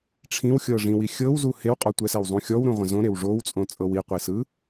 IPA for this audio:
ʈ͡ʂʰ ĩ w xʲ ɤ ʐ ĩ w i xʲ ɤ w z u h e w qʼ ɔ tʷ ɛ s ɛ w zˤ ũ xʲ ɔ w ɾ ũ ʁʷ ɛ̃ z õ ɾ e w ʐ o w t͡sʼ õ t͡sʼ ɤ w i qʷ i s ɯ

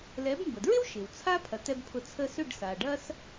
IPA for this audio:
l ɛ˩˥ b m b ə˩ d ɹ ɪ˥ w ʃ ɪ˩ w t͡sʰ a˥ pʰ ɐ˩ t ɛ˧ b pʰ ʊ˩˥ t͡sʰ ə˧ s ʏ˥˩ ɖ s a˩ ɖ ɐ˥ s

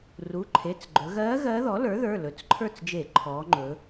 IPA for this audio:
r u˩˧˩ ǃʰ e˩˧˩ t͡s ɡ͡ǃ ɵ˩˧ ɣ ɜː˧˥ ɣ ɜː˧˥ ð ɔ˩˥ l ə˞˩˥ ð ə˞˩˧˩ l ɵ˩˥ t͡s ǃʰ ə˞˥˩ t͡s d͡ʒ e˧˩˧ ǃʰ ɔː˩˧ ŋ͡ǃ ɵ˩˧

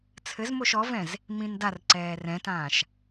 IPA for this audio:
t͡sʰ ɘ z m o ʃ ɔ v ɛ̃ z | m ĩ n d a r ǀ ɛː r ɛ̃ t ãː ʃ

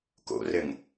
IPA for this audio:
k o̰ r ɘ ŋ

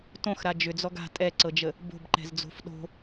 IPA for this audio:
t õ x ɾ a d͡ʒ ʏ d͡z ɔ ɡ a̤ tʼ ɛ ǀ ɤ d͡ʒ ə | b o̤ b ǃ ɛ̤ z d͡z o̤ f ɗ o̤

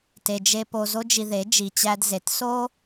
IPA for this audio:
t e˨ d͡ʒ e˧ p o˧ z o˦ d͡ʒ i˧ ð e˨˦ d͡ʒ i˨ t͡ɕ æ˧ d z e˨ t s o˦

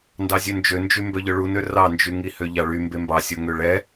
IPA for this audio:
n d ɑ zʲ ø n d͡ʒ ø n d͡ʒ y m b œ ʎ œ ɭ u n ø r ɑ n d͡ʒ y ŋ i h ø ʎ ɑ ɭ y m b e m b ɑ sʲ o ŋ ø ɭ ɛ

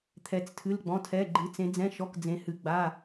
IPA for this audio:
t̪ʰ ɛ˩˧ t͡s tʰ ɨ˩˧˩ l ɡ͡b ɔ̃˩˧˩ tʰ ɛ˩˧˩ ɡ͡ǃ ɨ˩˧ t͡s ẽ˩˧ d͡z ɛ̃˩˧˩ ʃ ɔ˩˧˩ k d͡z ẽ˩˧ h ɨ˩˧ ɡ͡b a˩˧˩

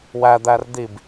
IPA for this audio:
w æ d̪ æ r d̪ i b

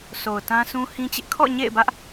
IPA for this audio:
sʰ o˨ ʊ̯ t ã˦ sʰ ũ˦ h ĩ˦ t͡ɕ ɪ˦ ʔ kʰ ɔ̰˦˨ ɲ ḛ˦˨ ɪ̯ b ä˦ ʔ

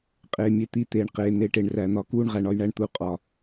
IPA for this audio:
qʼ eː˨ mʲ e˦˨ t̪ i˦˨ t̪ eː˨ ɳ q eː˨ n̪ e˨ ʈ e˨ ɳ r æ˨ n̪ ɒ˦ k uː˦ ɳ ʁ æ˨ ɳ ɒ˦ j ɳ æ˦ ɳ t̪ u˦ qʼ ɒ˦

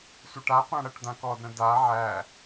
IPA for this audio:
sʷ ə ʈ a qʷ ã ɽ ɐ ʈ d̪ ã k ɔ d ɾ ə̃ d a ʕ æ

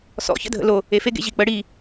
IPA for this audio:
s ɔ̰ ç ə̰ dʱ ə̰ l o | e f e ɡ ḛ ʑ i k͡p ə ɽ i

